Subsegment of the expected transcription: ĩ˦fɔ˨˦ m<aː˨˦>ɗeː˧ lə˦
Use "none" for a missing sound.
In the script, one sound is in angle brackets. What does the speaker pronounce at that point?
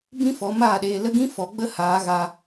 aː˦˨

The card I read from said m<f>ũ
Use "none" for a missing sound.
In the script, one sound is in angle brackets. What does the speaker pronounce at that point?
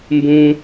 b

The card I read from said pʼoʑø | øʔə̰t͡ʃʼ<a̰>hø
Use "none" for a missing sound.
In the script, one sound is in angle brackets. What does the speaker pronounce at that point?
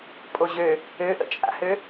a̰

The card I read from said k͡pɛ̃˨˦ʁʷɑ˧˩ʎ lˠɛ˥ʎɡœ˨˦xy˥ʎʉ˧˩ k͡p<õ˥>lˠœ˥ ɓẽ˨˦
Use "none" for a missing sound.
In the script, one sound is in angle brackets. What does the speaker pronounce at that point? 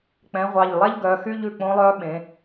õ˥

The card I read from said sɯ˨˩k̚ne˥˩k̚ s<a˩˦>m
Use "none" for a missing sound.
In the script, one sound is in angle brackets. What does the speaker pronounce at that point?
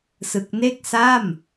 a˥˩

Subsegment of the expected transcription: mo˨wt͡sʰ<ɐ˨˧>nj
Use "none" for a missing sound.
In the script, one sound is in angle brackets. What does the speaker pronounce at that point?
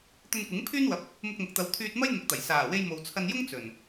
ɐ˧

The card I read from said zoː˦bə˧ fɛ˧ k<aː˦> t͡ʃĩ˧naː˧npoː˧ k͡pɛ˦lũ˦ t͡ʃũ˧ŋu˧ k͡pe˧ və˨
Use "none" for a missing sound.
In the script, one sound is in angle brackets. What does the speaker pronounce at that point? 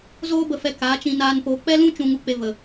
aː˨˦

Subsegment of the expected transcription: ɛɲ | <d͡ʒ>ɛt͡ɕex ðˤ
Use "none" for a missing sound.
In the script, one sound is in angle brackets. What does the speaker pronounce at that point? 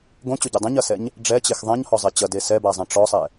ɖ͡ʐ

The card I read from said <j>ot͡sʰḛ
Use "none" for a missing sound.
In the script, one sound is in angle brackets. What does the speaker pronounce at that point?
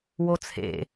w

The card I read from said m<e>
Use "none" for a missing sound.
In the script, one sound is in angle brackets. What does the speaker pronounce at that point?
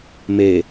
e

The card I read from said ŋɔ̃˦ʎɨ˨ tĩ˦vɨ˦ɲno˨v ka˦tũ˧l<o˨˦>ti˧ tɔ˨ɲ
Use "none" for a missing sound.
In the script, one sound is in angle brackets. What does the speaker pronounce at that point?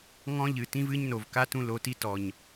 o˨˦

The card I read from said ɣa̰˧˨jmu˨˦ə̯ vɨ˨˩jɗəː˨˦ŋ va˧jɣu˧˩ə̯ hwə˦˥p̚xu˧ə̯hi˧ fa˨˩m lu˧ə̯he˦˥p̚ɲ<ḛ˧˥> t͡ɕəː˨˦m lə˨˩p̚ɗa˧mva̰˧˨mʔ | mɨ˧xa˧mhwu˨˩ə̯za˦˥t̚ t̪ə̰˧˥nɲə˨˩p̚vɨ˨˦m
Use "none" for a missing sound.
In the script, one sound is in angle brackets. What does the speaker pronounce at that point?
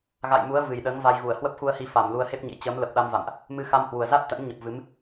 ḛ˧˥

